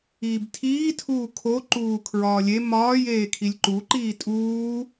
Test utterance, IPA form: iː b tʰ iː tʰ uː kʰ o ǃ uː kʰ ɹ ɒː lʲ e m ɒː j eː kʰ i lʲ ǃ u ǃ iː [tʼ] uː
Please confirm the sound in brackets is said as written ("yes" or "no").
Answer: yes